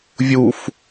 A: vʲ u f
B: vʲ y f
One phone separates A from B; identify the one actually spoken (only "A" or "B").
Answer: A